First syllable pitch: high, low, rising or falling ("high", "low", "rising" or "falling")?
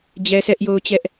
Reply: high